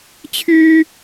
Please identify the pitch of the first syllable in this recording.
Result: high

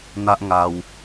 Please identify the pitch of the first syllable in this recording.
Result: high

